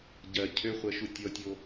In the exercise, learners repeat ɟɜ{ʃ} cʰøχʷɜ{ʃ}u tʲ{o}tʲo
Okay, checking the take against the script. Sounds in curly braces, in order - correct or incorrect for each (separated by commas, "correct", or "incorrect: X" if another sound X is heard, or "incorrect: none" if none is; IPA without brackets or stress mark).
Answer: incorrect: none, correct, incorrect: ɔ